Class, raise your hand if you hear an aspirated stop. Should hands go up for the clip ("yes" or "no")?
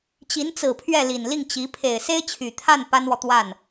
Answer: yes